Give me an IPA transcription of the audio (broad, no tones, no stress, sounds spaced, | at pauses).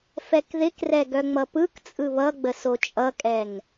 f ɛ k ð ɪ k r ɛ ɡ œ ŋ͡m ʌ p ɯ k t͡sʼ ɯ β ʌ ɡ͡b ə s o t͡ʃʼ ʌ kʼ ɛ ŋ